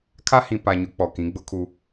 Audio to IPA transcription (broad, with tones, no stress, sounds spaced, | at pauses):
kʰ a˦ h ĩ˨ p a˨ ɲ ʊ˨˦ k͡p ɔ˨ k ĩ˨˦ ɡ͡b ʊ˦ kʰ u˦